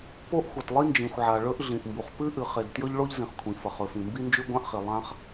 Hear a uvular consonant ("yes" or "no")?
yes